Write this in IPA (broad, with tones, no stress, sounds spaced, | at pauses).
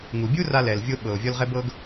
ŋ u˩ bʲ u˥ r a˧ l ɛ˩ l vʲ o˧ ɓ ɤ˩ o̯ vʲ ɔ˧ l ʁ ɛ˧ b ɤ˧ ɡ